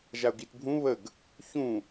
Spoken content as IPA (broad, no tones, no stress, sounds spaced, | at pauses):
ʒ a ʊ̯ ɡ i t bʱ ũ β ə ɡ | ç ũ